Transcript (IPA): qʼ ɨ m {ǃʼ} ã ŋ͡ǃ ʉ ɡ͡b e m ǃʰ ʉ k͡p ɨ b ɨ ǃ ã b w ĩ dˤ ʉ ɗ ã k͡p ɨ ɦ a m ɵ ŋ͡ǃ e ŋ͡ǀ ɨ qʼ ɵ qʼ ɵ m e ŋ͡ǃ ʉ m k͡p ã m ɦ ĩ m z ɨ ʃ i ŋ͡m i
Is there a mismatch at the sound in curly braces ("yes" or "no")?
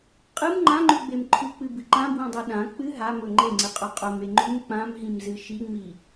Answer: yes